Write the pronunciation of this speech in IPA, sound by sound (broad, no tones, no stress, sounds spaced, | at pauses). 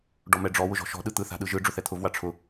ɖ ɔ m ɛ ɖ͡ʐ ɔ w ʊ ʒ ɔ̤ ʃ ɔ̤ ɗ ɯ t̪ ɯ θ a̤ ɗ ɯ ʒ ɯ ɖ͡ʐ ʊ θ ɛ t̪ʰ ʊ v w a ʈ͡ʂʰ ʊ